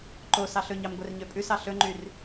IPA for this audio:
ǃ o s ɑ ɬ ɵ ɲ ɑ m ɡʷ ɛ r ɲ ø pʼ ʉ s ɑ ɬ ɵ ŋ͡ǃ y r

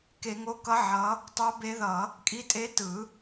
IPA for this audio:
k e˨˩˦ ŋ o˨˥ k ʌ˨˥ ʕ ʌ˨˥ | tˤ o˨˥ b e˨˥ ð ʌ˨˩˦ | kʼ i˨˥ tʼ e˨˥ t ɯ˨˩˦

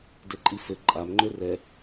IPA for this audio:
d ɘ ǃʼ i f ɘ ǃʼ a m ŋ͡ǃ ø r ɛ

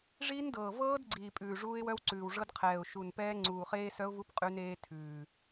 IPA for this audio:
ʐ iː˦˥ n d ɤː˨˩ v ɤː˦˥ d ɡ͡ǀ iː˨˩ pʼ ʉː˨˩ ʐ uː˦˥ ɪ̯ w œ˦˥ w ǀ ʉː˨˩ w ʐ ɤ˦˥ d qʰ ɛː˨˩ ʊ̯ ʃ u˨˩ n p ɛː˦˥ ŋ͡ǀ uː˨˩ χ eː˦˥ s œ˦˥ ʊ̯ v u˦˥ p qʼ ʉ˦˥ n eː˦˥ tʰ ʉː˨˩

